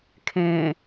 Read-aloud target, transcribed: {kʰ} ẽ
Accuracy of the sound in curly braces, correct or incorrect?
correct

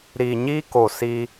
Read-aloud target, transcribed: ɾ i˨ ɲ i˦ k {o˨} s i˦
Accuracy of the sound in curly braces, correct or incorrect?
correct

